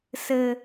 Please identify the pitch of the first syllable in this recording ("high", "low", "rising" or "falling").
high